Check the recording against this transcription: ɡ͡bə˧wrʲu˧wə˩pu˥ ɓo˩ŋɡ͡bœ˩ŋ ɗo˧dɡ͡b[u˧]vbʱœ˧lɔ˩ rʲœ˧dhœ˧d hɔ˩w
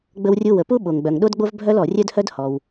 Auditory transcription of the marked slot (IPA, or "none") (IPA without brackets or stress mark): o˧